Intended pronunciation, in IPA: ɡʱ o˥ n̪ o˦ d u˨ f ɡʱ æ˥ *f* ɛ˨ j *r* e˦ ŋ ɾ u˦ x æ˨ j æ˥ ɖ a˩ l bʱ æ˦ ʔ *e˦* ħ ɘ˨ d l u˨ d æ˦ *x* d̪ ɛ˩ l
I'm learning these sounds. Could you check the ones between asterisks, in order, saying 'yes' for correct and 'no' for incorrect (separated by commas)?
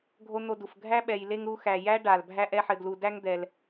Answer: no, no, no, no